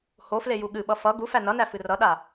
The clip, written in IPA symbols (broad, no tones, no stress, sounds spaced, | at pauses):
h o f l e j u ɠ ɨ ɓ ʌ f ʌ ɡ u f æ n ʌ n æ f ɨ r ʌ ɗ a